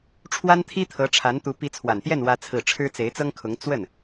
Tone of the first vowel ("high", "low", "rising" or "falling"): high